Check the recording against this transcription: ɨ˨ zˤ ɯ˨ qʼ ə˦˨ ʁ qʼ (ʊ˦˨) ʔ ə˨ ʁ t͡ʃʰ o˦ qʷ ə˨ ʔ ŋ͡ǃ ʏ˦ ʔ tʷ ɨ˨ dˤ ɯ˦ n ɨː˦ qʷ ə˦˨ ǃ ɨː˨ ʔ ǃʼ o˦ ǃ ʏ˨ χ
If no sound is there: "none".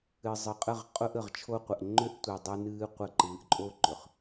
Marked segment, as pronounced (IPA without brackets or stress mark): ʊ˦